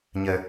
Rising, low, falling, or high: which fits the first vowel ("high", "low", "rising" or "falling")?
low